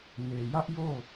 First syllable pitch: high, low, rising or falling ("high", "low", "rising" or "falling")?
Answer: low